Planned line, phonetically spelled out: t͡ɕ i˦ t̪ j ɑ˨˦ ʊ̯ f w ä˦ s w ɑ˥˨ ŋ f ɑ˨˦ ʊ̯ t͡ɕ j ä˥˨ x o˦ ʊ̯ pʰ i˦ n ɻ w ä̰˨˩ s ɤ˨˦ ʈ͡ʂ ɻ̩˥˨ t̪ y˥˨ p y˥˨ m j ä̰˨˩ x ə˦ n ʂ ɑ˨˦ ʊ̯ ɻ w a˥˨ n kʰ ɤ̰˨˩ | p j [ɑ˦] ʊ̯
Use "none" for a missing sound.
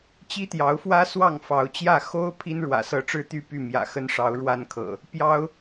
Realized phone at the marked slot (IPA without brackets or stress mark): ɑ˦